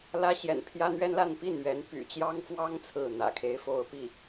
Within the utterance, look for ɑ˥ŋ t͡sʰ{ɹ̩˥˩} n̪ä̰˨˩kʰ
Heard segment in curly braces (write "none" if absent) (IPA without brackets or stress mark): ɹ̩˥˩